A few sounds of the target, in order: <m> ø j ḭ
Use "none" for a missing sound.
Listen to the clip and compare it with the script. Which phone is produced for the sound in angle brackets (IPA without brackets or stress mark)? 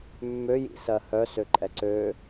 mː